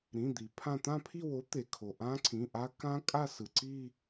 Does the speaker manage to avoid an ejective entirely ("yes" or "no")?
no